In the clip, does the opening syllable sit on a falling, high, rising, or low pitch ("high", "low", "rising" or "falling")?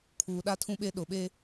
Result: low